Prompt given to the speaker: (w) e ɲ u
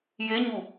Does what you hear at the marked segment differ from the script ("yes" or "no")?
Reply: yes